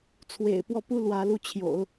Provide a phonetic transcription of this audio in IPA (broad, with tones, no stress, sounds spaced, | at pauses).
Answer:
t͡sʰ w ḛ˨˩ ɪ̯ p w ɔ˥˩ p u˥ l w ä˧˥ l u˥˩ t͡ɕʰ j o̰˨˩˦ ʊ̯